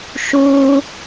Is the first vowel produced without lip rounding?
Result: no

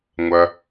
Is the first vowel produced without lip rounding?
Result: yes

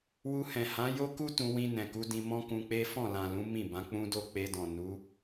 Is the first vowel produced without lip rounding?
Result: no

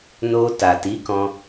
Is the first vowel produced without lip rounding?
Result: no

